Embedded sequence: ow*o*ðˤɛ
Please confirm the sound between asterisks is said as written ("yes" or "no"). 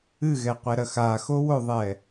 yes